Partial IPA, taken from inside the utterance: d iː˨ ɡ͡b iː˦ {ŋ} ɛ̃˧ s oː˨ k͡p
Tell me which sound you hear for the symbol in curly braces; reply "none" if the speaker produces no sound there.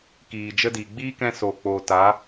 k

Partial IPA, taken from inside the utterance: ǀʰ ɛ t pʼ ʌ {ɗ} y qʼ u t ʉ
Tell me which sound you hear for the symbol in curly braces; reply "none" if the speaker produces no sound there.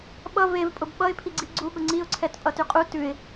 t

